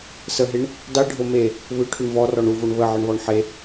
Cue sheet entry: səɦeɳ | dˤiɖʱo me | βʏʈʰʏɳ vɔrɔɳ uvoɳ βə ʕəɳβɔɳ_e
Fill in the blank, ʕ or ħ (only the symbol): ħ